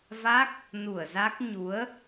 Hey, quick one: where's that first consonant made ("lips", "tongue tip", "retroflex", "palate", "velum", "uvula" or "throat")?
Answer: lips